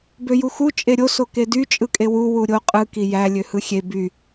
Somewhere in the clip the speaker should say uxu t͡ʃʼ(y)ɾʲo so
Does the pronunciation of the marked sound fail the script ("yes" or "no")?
yes